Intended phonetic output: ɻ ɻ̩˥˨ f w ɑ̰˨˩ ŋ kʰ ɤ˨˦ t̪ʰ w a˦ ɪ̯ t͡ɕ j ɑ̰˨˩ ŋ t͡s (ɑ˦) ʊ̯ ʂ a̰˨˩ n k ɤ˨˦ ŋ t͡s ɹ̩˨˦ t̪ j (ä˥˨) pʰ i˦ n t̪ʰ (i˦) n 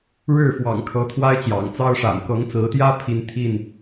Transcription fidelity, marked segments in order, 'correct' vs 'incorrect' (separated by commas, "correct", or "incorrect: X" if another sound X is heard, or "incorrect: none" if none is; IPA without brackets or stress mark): correct, incorrect: ä˦, incorrect: i˥˨